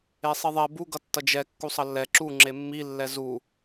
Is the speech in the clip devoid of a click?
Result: no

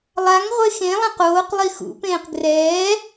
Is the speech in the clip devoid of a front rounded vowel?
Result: yes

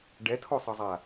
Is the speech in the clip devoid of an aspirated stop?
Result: no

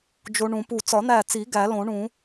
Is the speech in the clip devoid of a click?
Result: yes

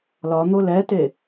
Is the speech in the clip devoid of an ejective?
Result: yes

